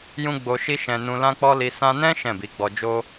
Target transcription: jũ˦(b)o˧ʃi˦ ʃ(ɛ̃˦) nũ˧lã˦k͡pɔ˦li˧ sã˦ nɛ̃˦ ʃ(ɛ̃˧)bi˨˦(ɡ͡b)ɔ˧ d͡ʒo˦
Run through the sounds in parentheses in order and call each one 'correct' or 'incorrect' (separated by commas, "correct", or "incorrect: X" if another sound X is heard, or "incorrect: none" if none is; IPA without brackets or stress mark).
incorrect: ɡ͡b, incorrect: ɛ̃˧, incorrect: ɛ̃˦˨, correct